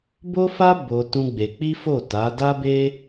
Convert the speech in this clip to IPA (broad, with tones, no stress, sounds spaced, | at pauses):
b o˦ f a˦ b o˧ t ũ˦ ɡ͡b e˧ k͡p i˦ f o˦˨ t a˨˦ d a˦ b e˦